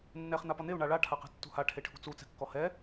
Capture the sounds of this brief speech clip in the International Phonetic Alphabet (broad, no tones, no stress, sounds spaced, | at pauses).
nː ɛ χ n̪ a p ɒ n̪ e u̯ ɳ a ɭ a ʈʰ a q ɛ̤ tː ṳ h a ʈʰ e ʈʰ ṳ t͡s u t͡s ɛ̤ kː ɔ h ɛ